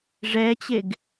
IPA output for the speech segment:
ʐɛt͡ɕeɡ

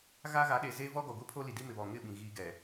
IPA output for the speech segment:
ɣa˦ɣa˨˦ɗe˨ ze˦ vɔ˦ɡɔ˨ɡʷi˦ pʰo˦li˨di˦ mɪ˨βɔ˨ ŋɪ˦˨ ɓĩ˨ɣiː˦ɡɛ˨

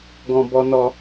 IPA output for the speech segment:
ɡɔ̃˧bɔ˧nɔ˧

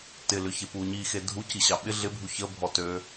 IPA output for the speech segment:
tɪlʏ çepuɲixe dʱuci ɕɑɓɪ ɮɪbʱu çə bʱɔtø

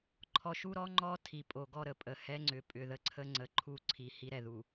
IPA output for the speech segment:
ǃʰɔ˨ʃu˦ɾɔ˦ ŋ͡ǃɔ˦ tʰi˨pʼo˨ɡɔ˦ɾə˨ pʼə˨hɛ˦ŋ͡ǀʏ˨ pʼʏ˨ðə˦ǀʰə˦ ŋ͡ǀə˨ǃʰu˦˨ ǀʰi˨ hi˦ɾɛ˨ðu˨

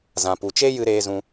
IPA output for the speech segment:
zã˨pu˨t͡ʃe˦jɨ˧ ɾeː˧zũ˧

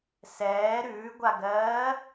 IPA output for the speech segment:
sɛː ɾʉːɡʷaɡɜː

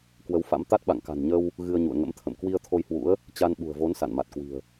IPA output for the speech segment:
kwə˨˦wfa̰˧˥m t̪a˦˥t̚ɓa̰˧˨ŋ ka̤˨˩nɲə˧w | ɣɨ˧ə̯ɲṵ˧˨ə̯ŋə̰˧˥mt̪ʰə̰˧˨m kwi˧ə̯ t̪ʰo˧jhwṵ˧˥ə̯ | t͡ɕa˧nɓṳ˨˩ə̯vo˨˦n sa̰˧˨nma˨˩t̚kwi̤˨˩ə̯

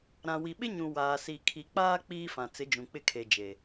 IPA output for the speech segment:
ɾã˨wi˨ɓɪ˦ɲũ˨ waː˨si˨kʰi˨k͡paː˦ k͡piː˦fã˨ t͡sɪ˨˦d͡ʒũ˨k͡pɪ˦ kʰe˨ d͡ʒe˨

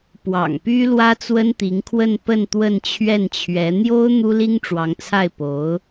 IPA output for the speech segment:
pwɑ̰˨˩ŋpy˥ lwä˥t͡swə˥nt̪i˧˥ŋkʰwə˥˧n pə˥˧n t̪wə˥˧nt͡ɕʰɥɛ˥˩nt͡ɕʰɥɛ˧˥ n̪jo˥ʊ̯ n̪u˥li˥ŋʈ͡ʂwɑ˧˥ŋt͡sʰa˥˩ɪ̯ po˧˥ʊ̯

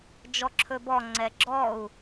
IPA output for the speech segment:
d͡ʒɔǁʰɵbɔ ŋ͡ǀɛɡ͡ǁɔu̯

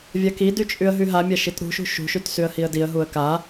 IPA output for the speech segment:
vʲakidy t͡ʃʼyə̯ɦyɦamʲa ʃitɾṳʃṳ ʃṳʃyt syə̯hiə̯diə̯ɦuə̯ ka

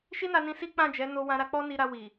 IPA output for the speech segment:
ʃi˦na˧nĩ˧ si˦k͡pã˦˨ d͡ʒɛ˨˦no˧wã˧ɾa˧ k͡pɔ˦ni˧ɾa˧ wi˨

